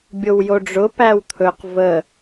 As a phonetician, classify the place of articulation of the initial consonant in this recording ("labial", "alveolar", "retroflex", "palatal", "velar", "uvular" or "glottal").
labial